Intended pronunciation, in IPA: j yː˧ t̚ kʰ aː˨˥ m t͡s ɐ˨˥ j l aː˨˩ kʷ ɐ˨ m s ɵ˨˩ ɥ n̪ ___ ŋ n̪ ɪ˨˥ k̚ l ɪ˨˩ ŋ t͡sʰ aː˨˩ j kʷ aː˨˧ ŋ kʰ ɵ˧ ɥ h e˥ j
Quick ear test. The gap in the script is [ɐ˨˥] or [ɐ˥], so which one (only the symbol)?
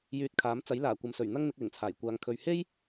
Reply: ɐ˥